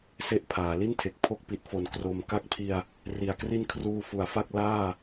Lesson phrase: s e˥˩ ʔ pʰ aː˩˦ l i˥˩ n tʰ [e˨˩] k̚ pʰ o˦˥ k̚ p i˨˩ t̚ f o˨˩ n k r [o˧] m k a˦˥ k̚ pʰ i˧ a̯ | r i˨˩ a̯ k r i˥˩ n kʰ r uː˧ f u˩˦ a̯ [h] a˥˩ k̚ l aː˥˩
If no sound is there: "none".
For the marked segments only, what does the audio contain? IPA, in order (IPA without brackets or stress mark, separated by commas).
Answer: e˨˩, o˨˩, f